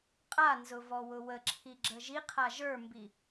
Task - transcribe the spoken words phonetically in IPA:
qʼanzʊ vɔwʊwəǁʰi ɡ͡ǁəʒiqʰa ʒə˞mbi

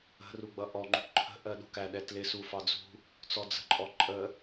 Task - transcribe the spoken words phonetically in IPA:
ə̤ruɡ͡bʌ ʔɔ ŋ͡ǃṳǃʰə̤ ʔɜɗṳkæ ɗɛtlɪsu fɑd͡zṳ | t͡sɔd͡zə̤ǃʼɔ ǃʼə

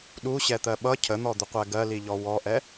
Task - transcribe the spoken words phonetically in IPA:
ɗuɕɛt̪ɜ ɓʌ cʰən̪ɔd̪ʊqʷæ ɡɜliʎɔ wɔʔɛ

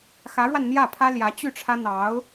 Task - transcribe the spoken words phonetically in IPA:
xä˧˥ɻwa˧n n̪jä˥˩pʰä˥ljä˧˥ t͡ɕy˥˩ʈ͡ʂʰä˥ n̪ɑ˧˥ʊ̯

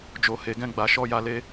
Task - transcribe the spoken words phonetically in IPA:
d͡ʒo˨he˨ɡɛ̃˧ ɡ͡ba˨ʃɔ˧ja˧le˧

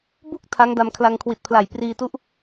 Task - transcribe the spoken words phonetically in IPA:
bu˥˩k̚ tʰa˦˥ŋda˧m kʰla˧ŋkʰwi˨˩t̚pʰla˨˩j priː˧tu˦˥ʔ

